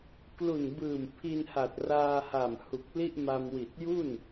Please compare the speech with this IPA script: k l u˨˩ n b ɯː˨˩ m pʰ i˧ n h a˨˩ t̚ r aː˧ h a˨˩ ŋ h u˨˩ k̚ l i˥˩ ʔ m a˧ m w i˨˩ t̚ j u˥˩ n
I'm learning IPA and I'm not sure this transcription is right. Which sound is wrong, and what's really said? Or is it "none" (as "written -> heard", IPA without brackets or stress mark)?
ŋ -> m